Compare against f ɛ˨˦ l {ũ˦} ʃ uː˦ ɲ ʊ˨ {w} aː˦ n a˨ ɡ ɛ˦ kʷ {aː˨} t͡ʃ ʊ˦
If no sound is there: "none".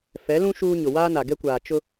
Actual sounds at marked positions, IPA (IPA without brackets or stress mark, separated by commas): ũ˦, w, aː˨